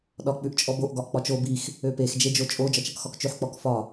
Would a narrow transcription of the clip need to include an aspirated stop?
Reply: no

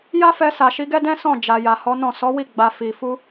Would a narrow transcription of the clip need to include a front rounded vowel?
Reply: no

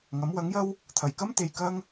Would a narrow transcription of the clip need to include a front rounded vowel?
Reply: no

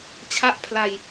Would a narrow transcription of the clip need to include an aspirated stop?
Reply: yes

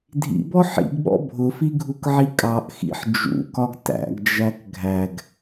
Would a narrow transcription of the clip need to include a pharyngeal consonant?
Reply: yes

